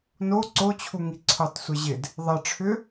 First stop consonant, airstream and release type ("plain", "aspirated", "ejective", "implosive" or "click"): click